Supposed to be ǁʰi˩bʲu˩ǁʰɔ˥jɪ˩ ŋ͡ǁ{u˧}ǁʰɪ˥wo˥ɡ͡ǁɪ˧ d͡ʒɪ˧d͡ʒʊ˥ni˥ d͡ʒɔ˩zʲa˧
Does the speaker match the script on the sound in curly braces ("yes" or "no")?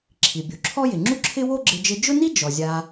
no